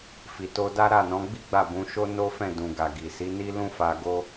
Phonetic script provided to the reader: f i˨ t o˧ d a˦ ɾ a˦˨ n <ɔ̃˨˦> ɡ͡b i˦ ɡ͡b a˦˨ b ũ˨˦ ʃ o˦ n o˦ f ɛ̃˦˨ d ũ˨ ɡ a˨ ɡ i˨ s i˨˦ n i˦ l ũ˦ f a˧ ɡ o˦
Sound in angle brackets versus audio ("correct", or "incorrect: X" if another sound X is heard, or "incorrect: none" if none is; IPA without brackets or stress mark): correct